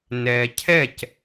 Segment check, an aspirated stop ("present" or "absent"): present